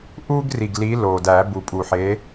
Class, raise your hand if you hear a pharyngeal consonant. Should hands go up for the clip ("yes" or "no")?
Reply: yes